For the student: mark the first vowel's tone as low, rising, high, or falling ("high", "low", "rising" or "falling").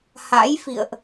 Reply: rising